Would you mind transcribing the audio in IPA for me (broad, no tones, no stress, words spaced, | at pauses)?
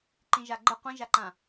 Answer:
ǃĩʒaɡ͡ǃə qʷĩʒaǃã